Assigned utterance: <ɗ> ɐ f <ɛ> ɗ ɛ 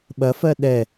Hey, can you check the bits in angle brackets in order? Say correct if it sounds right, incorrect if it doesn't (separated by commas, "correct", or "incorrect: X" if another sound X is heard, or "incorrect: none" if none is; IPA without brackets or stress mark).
incorrect: ɓ, incorrect: ɜ